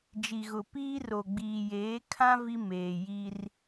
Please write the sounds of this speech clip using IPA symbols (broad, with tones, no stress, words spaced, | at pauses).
d͡ʒi˨ɣʊ˨piː˦ ro˨ ɡ͡biː˨jeː˨˦kʰã˦ vi˦meː˨ ji˦r